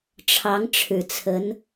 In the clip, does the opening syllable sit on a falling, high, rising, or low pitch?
rising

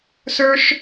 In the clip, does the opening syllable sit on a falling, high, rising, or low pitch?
high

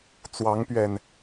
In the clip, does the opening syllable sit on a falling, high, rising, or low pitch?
rising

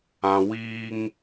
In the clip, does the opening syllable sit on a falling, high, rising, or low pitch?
low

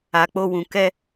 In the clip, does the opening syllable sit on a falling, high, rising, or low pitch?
low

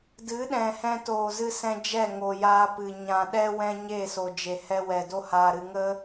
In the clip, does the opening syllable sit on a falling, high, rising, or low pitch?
rising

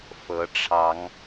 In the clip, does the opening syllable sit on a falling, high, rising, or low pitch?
rising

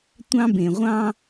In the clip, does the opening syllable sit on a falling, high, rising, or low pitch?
high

